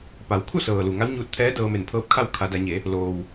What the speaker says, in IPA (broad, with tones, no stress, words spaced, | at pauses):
pa˩˧w kʰu˥˨sɤː˩lu˩ ŋa˧˥wɲuː˧t̚t̪ʰɛː˧˥ dɤː˧me˧˩npʰɤː˧˥p̚kʰa˥˨w kʰa˩˧da˩˧ɲe˩˧ | loː˩w